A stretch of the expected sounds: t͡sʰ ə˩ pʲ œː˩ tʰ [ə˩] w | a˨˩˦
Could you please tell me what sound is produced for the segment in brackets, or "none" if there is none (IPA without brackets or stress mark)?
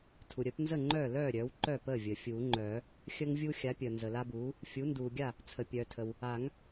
ə˩